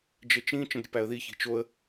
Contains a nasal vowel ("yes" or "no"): yes